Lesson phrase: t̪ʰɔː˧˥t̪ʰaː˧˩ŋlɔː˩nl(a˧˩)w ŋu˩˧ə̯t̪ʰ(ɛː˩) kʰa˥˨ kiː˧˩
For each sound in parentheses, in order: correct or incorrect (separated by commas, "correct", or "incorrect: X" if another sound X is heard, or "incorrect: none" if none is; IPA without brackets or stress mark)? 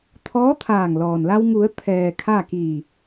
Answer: incorrect: a˧, correct